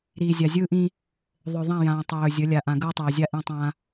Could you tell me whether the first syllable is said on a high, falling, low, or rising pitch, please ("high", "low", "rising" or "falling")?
low